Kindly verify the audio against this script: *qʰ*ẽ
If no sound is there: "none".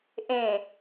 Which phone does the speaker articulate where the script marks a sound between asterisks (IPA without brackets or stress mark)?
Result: ʔ